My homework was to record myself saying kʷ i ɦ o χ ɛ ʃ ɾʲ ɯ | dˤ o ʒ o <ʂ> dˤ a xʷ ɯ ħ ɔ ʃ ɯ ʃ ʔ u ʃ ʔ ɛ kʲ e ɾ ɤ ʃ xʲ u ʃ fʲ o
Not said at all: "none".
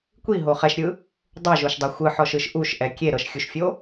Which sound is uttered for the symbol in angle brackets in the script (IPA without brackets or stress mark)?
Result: ʃ